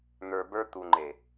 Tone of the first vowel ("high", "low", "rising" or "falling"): low